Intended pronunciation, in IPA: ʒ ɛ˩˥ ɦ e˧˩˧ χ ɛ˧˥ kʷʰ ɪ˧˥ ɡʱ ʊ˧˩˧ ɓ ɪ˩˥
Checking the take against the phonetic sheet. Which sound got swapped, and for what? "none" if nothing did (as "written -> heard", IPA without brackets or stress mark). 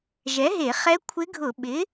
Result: none